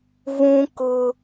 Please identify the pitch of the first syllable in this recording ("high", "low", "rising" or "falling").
high